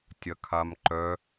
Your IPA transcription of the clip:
tʲ ɐ kʰ a m ǃ œ

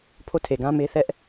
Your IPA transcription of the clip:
pʰ o˦˨ tʰ e˨ ɡ ã˦ m e˦ θ ɛ˦ ʔ

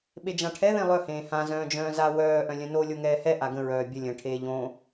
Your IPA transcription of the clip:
ɓ e d͡ʒ ã ʈʰ ɛ ð ẽ lˠ œ h ẽː h ã z œ̃ː d͡ʒ œ̃ː z a w œː ʔ œ̃ lʲ œ̃ n o lʲ o ŋ ɛː h ɛ ʔ a ɡ ə̃ ɹ œː bʲ ə lʲ ə̃ ʈʰ eː ʎ õ

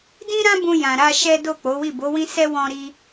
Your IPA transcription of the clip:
d ĩ˦ ɾ ã˦ b ũ˧ j ã˨ ɾ a˧ ʃ ɛ˦ d o˦˨ k͡p o˨˦ w i˦˨ b o˨˦ w ĩ˦ s ɛ˦ w ɔ̃˦ ɾ i˧

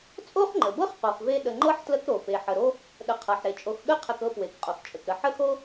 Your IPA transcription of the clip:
t͡sʼ o˥ χ ŋ͡ǃ ə˩ b ɤ˥ χ q o˨ χ v e˥ ɗ ə˨ ŋ͡ǃ ɤ˥ ħ t l ə˦ k ɾ o˩ p e˩ ħ ə˩ ɾ o˦ | ɗ ə˨ qʰ ɤ˩ ħ ɾ e˩ t͡ʃʼ o˨ x ɠ ə˥ qʰ ə˨ k ɤ˦ p w e˩ k qʼ o˩ x t͡ʃʼ ə˩ k ɾ ə˨ ħ ə˥ x o˥

